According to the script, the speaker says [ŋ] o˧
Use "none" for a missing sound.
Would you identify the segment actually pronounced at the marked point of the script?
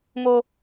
ŋ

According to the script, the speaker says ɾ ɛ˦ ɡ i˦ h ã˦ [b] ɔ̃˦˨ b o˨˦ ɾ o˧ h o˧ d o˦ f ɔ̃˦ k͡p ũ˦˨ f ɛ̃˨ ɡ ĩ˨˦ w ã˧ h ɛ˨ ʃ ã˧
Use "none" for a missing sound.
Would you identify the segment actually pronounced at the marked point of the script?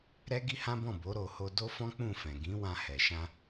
b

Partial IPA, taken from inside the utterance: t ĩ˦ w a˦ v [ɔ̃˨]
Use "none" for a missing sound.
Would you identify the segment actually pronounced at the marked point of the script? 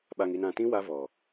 ɔ˨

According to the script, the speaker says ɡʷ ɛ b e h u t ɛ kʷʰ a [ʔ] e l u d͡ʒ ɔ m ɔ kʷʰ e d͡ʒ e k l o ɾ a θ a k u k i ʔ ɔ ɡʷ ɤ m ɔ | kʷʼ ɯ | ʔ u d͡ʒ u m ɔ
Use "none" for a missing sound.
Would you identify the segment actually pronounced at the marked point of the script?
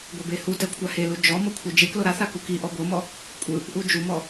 h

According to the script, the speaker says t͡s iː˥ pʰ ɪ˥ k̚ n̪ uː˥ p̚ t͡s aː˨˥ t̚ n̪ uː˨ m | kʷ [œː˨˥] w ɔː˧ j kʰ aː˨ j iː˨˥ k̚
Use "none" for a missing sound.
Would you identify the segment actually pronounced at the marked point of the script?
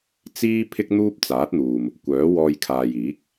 œː˨˥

